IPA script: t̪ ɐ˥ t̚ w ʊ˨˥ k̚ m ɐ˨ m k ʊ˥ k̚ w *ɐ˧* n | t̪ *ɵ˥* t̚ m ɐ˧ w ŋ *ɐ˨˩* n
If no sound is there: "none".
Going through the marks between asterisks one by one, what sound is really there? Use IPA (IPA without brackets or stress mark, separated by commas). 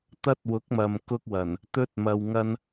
ɐ˨˩, ɵ˥, ɐ˥